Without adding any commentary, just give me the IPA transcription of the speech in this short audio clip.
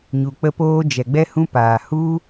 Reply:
ɲ u˨ k͡p ə˦ p oː˦ d͡ʒ ɛ˨ ɡ͡b ɛ˦ h ũ˦ p aː˨ h u˦

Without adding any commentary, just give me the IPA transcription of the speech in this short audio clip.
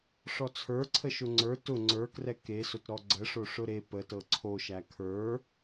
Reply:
ʂ ɔ t͡sʰ ə˞ ǀʰ ə ʃ ʊ ŋ͡ǀ ə˞ t ʊ ŋ͡ǀ ə˞ k r ɛ k e s ʊ t ɾ ɔ ɡ͡ǀ ə ʂ o ʂ ʊ ɾ e p ə t ɤ ǀʰ o ʃ æ kʰ ə˞

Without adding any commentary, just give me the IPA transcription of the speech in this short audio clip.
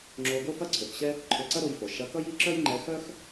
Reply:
ŋ͡ǁ o˧ ɡ o˥ f ɐ˥ ǀʰ ø˩ k ɕ ɛ˥ | ǃʰ ø˧ ǀ ɐ˥ ɾ o˧ j f o˩ ʃ ɐ˧ k ʌ˥ j i˥ ǁ œ˥ j ŋ͡ǃ ɛ˧ x œ˥ x

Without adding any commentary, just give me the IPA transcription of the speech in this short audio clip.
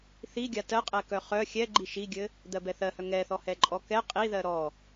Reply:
θ i ɡʲ a t ɜ qʼ ɛ k œ χ œ xʲ ɛ ɡ͡ǃ i ʃ i ɡʲ ɘ | d̪ ɜ b ɛ θ ɜ h œ ŋ ɛ θ ɔ h ɛ ǃʼ ɔ k ɛ qʼ i ð ɜ ɾ ɔ

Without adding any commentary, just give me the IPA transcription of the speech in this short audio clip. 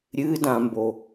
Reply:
ɾʲ ɨ d ã m b o

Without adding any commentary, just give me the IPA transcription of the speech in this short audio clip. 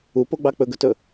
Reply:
u p o ɡ͡b ɑ k͡p ɵ ɡ ɵ t ɵ

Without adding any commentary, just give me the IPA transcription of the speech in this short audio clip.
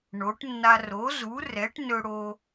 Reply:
ɳ o˩˥ ʈ nː a˧ r o˩˥ z u˩˥ r ɛ˩˥ ʈ n ɵ˧ ɽ o˧

